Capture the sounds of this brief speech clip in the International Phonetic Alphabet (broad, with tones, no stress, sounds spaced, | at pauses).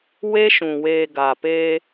w e˦ ʃ ũ˨ w eː˨ ɡ a˨ p eː˦